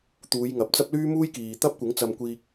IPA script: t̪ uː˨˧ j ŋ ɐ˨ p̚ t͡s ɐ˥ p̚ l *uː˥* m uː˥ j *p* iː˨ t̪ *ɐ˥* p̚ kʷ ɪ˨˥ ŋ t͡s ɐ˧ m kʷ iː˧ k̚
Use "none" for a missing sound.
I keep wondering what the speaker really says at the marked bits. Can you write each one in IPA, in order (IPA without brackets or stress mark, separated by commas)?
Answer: yː˥, k, ɐ˥